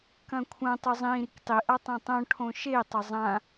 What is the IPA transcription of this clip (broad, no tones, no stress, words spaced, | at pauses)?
kɐ̃kʷʰɐ̃ tˤʉzˤĩ ɾiktˤi ʔatˤɐ̃tˤõ ʈʰõʃe tˤɵzˤã